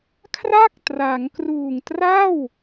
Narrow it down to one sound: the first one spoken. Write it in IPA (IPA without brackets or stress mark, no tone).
kʰ